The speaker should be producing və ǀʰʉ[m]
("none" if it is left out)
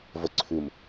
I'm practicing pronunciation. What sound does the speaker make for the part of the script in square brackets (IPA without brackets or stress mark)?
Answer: m